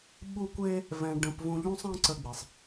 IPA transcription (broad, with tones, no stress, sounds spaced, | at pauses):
ɓ u˥ kʷ e˥ | v ɛ̃˧ ɖ ə̃˧ p v ũ˧ ʎ ũ˥ sˤ ɛ̃˥ ǀ ə˧ ɡ͡b i˩ sˤ